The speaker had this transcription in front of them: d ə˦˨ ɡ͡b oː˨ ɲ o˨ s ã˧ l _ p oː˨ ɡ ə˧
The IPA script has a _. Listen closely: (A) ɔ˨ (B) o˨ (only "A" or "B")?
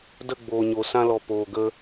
A